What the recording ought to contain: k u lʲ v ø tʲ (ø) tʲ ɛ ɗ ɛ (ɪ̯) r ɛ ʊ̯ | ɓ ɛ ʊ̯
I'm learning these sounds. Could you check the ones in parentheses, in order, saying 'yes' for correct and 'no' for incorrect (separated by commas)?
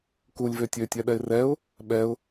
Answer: yes, yes